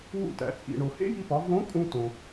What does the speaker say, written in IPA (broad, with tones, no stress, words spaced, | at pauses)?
wṵ˧ tæ̰˩˧t͡sʼḭ˩ ɳo˩hḛ˥ji˧pɒ˩˧ võ˧˥kʼũ˧ tõ˩